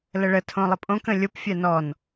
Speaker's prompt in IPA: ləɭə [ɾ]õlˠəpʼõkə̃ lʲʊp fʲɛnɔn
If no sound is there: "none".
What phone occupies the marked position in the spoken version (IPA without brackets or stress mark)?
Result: tʰ